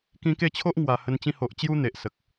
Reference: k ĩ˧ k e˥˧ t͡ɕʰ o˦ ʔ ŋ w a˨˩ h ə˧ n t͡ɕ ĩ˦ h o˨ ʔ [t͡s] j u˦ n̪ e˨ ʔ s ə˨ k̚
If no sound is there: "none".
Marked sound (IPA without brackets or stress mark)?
t͡ɕ